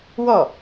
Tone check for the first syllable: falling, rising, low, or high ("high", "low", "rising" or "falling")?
falling